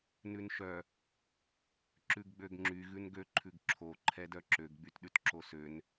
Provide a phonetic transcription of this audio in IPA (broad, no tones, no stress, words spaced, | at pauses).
nʉnʃœ | ǁʉɡɡ͡bøɡŋ͡ǁy ɣʉnɡø ǃʰʉɡǁʰo ǃʰɛdœǁøɡ ɡ͡bytɗʉtǁosøn